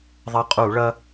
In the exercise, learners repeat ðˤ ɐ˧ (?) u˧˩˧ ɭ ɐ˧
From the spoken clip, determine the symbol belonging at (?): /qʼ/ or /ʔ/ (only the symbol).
qʼ